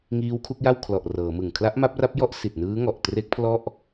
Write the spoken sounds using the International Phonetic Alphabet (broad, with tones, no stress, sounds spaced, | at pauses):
ŋ iː˦˥ w kʰ u˦˥ k̚ j a˥˩ w kʰ l ɔ˨˩ ʔ r ɤː˩˦ m ɯ˨˩ ŋ kʰ l a˦˥ ʔ m a˦˥ p̚ r a˦˥ p̚ j ɔ˥˩ ʔ s i˨˩ t̚ n ɯː˦˥ ŋ ɔ˨˩ ʔ t r e˦˥ k̚ pʰ l ɔ˥˩ ʔ